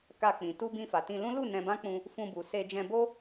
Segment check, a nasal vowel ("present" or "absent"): present